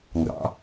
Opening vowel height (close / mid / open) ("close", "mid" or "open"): open